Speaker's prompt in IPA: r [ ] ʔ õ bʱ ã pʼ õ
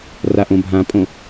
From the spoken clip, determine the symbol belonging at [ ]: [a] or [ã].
a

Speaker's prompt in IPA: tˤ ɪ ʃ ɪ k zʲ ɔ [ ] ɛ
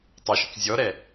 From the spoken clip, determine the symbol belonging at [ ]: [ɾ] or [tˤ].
ɾ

